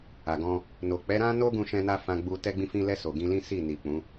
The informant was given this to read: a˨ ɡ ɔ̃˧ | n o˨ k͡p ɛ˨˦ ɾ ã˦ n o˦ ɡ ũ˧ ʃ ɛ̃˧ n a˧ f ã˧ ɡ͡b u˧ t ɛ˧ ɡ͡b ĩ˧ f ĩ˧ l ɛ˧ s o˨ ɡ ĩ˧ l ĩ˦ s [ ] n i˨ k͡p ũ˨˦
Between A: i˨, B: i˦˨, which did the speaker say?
B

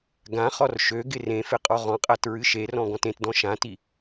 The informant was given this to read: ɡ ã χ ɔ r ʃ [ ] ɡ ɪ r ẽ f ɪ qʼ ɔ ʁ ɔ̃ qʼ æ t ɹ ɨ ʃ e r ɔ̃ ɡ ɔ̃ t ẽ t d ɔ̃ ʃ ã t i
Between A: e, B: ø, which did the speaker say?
B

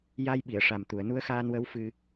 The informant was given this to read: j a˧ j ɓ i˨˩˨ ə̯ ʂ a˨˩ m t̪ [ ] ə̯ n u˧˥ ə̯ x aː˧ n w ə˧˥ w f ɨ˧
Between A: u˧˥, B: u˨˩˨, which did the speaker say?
B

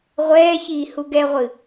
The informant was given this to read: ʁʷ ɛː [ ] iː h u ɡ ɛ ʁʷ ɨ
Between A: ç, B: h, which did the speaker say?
A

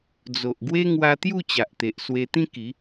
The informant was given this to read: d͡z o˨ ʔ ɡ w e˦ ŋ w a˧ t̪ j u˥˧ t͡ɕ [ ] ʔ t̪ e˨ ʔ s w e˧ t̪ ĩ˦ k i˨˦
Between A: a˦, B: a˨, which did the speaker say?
B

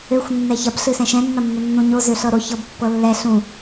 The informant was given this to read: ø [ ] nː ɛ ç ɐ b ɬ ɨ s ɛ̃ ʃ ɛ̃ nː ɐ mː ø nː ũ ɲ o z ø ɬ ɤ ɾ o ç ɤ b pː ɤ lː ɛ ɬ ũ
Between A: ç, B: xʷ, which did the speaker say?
B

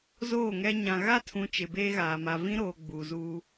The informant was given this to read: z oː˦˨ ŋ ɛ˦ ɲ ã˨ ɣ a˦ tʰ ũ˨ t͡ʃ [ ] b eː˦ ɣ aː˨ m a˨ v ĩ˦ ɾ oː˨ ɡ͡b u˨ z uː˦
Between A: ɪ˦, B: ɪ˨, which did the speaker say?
B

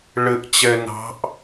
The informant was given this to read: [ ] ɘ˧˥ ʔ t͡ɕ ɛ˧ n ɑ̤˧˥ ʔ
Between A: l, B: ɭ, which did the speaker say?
B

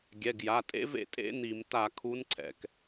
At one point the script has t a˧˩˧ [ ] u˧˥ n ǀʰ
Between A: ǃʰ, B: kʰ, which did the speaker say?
B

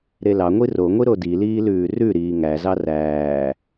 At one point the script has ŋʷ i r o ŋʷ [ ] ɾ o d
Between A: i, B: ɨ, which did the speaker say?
A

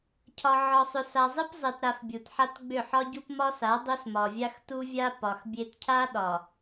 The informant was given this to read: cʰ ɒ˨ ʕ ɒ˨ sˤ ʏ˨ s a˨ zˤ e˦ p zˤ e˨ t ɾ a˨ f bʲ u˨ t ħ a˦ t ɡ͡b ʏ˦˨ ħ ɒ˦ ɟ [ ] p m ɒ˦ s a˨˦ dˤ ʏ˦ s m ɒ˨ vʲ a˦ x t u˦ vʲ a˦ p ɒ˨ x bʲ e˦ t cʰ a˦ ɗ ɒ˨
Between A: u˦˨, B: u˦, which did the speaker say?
B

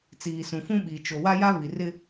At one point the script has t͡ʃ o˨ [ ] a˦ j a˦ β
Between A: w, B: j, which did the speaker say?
A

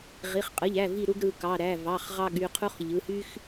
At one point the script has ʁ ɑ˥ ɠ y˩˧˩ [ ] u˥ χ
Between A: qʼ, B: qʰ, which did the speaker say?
B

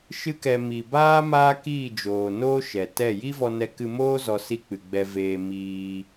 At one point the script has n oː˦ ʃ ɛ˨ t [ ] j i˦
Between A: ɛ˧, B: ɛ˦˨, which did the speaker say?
B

